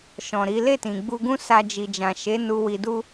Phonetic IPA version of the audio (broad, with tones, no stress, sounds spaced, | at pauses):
ʃ ɔ̃˨ ɾ i˨˦ l e˦˨ t ĩ˨ ɡ͡b u˧ ɡ ũ˦ s a˧ d͡ʒ i˨ d͡ʒ ã˨ ʃ e˨˦ n u˧ w i˧ d u˦